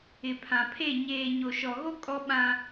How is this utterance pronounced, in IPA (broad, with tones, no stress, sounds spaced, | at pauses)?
ɪ˨ pʰ ã˨ pʰ e˦˨ ɲ eː˨ ɲ o˨ ʃ ɔ˨ ɣ o˦ kʼ ɔ˦ ɓ ã˦